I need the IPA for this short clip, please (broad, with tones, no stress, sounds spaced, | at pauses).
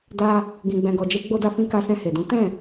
d a˧ | ɡ ĩ˧ ɡ͡b ɛ̃˧ ɡ ɔ˧ d͡ʒ e˦ ɡ͡b o˧ d a˧ f ĩ˧ k a˧ s ɛ̃˧ h e˨ d ũ˨˦ t ɛ̃˦˨